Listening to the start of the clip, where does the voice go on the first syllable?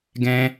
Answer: high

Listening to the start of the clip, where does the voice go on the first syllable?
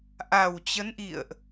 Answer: low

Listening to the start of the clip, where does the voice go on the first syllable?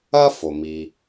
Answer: high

